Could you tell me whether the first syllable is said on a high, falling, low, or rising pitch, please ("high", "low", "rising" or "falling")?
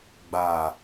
low